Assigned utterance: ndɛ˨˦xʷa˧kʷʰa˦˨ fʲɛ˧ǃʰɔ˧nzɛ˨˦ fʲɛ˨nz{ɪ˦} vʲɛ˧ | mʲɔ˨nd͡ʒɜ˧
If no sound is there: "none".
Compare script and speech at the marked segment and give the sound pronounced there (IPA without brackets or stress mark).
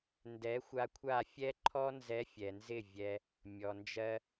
ɪ˦˨